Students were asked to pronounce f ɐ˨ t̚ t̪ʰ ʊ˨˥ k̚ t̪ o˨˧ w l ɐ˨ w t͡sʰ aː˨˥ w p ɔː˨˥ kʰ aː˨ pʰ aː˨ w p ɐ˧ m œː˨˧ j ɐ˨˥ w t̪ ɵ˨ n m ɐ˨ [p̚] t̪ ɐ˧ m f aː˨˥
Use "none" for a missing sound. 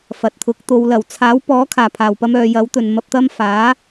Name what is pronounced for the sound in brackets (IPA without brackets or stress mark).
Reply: p̚